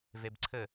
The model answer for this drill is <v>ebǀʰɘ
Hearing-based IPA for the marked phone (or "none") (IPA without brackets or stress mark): v